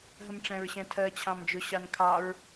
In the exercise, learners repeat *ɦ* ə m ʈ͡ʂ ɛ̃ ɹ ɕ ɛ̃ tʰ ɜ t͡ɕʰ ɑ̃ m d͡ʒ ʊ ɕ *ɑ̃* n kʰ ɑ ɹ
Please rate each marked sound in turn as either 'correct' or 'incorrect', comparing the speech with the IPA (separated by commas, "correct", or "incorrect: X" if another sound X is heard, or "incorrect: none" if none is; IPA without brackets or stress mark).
correct, incorrect: ɑ